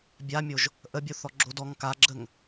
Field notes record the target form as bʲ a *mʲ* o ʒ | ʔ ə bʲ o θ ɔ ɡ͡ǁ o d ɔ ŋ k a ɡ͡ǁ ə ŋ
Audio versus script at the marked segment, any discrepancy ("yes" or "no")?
no